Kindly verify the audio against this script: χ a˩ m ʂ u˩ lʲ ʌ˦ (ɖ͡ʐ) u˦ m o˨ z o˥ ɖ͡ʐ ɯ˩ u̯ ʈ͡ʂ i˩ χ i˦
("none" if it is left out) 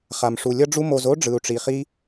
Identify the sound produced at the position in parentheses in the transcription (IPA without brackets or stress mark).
ɖ͡ʐ